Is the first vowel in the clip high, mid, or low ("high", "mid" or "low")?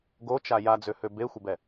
mid